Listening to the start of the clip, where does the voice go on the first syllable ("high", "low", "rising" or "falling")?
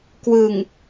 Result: low